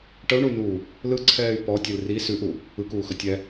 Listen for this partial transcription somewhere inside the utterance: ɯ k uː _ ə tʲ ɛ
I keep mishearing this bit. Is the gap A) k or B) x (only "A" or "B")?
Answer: B